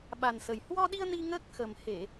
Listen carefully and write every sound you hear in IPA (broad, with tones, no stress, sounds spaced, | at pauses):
ɓ a˨˩ n s ə˨˩ j h w ɔ˧ ɗ i˧ ə̯ n i˧ ŋ əː˦˥ k̚ x ə˨˩ m h e˧˩˨